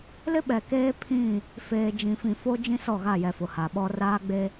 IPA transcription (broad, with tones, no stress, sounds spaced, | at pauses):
l ɪ˦ ɓ ɛ˨ k eː˦ pʰ ĩ˦˨ | f eː˨ d͡ʒ ĩ˨ f ĩ˨ f o˦ d͡ʒ ĩ˦ s ɔ˦˨ ɣ a˦˨ j ɛ˨ f ʊ˨ h a˨ ɓ ɔ˦ r aː˦ ɡ͡b e˦